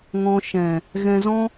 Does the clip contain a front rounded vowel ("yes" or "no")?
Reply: no